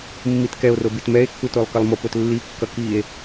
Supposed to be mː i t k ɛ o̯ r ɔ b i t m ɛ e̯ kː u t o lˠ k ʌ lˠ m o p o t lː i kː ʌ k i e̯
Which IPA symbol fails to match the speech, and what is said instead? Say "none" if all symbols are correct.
ɔ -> o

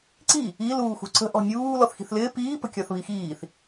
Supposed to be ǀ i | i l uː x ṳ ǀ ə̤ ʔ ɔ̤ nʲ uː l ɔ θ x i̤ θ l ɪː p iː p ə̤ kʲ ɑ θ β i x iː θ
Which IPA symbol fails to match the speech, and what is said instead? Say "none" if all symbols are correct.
ɑ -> ɒ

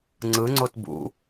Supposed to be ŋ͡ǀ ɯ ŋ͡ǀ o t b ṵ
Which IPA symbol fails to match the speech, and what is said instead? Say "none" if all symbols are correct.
none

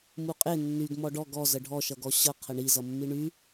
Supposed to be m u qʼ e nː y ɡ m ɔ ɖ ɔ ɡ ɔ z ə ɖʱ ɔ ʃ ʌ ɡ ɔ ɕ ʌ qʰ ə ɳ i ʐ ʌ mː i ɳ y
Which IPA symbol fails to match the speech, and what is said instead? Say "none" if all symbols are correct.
ʐ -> z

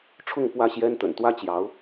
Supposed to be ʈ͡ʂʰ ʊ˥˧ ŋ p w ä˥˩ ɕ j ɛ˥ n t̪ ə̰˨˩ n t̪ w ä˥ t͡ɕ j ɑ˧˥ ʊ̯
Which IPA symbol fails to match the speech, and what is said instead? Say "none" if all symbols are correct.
none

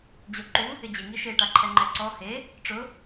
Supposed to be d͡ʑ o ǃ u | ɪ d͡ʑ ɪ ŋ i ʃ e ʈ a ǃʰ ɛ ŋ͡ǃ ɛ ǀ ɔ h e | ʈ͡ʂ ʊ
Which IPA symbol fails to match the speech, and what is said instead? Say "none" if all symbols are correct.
none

